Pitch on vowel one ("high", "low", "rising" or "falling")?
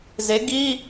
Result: rising